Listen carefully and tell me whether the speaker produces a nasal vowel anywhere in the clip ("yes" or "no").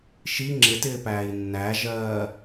no